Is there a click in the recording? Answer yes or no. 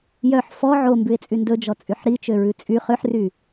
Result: no